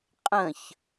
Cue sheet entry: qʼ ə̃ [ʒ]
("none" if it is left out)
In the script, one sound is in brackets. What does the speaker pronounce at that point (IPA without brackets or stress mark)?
ç